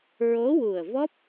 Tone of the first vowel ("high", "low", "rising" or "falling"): rising